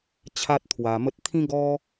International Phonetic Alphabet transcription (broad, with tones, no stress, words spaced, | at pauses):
t͡ɕʰa˦t̚t̪ʰwa˧mə˦t̚ t̪ʰĩ˦ɡɔ˦